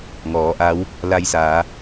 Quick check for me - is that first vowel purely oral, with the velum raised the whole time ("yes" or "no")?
yes